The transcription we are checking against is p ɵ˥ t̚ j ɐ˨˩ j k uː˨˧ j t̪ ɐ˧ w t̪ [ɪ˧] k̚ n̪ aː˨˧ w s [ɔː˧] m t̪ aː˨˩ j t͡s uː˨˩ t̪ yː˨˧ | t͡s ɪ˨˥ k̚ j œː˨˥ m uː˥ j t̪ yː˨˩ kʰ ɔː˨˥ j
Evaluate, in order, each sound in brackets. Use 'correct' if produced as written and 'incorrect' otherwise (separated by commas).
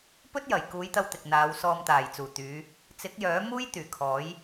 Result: incorrect, correct